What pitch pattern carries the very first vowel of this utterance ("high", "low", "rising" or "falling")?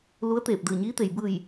rising